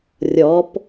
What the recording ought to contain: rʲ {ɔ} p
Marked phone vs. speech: correct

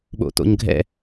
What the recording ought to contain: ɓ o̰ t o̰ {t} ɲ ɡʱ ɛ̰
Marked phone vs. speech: incorrect: none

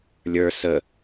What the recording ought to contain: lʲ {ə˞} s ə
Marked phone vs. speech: correct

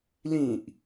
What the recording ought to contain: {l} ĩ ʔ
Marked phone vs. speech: correct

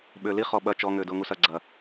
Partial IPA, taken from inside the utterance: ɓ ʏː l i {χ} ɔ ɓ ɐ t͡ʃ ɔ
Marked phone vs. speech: correct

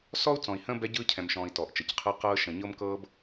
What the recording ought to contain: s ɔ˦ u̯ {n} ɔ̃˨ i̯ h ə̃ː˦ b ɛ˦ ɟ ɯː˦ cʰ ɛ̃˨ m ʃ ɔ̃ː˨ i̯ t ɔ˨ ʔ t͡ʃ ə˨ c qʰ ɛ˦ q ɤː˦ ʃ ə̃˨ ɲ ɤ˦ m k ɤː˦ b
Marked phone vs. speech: incorrect: t͡s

